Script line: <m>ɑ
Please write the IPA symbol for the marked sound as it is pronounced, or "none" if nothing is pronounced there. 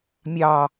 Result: mʲ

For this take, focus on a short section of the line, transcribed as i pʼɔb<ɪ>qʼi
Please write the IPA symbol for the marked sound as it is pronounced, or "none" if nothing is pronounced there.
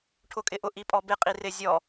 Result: ɪ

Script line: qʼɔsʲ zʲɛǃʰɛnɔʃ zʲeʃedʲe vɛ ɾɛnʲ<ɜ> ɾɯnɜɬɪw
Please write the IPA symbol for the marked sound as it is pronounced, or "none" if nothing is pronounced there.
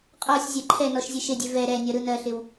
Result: ɜ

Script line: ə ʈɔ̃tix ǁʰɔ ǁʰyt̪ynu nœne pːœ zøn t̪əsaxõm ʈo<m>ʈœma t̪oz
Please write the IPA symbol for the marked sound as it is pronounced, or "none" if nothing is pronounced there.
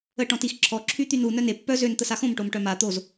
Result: m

